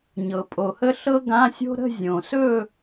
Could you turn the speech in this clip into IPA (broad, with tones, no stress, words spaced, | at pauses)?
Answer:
ɲɤ˨˩pʼo˨˩hə˥ ɬɤ˥ɡã˧˥˧sʲo̤˥ ɾə̤˥˧zʲõ˨˩sɵ˥˧